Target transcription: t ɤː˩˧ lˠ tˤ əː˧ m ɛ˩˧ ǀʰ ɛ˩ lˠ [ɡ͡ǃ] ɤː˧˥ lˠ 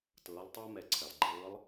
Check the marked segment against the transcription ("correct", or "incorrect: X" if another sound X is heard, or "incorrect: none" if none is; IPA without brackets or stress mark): correct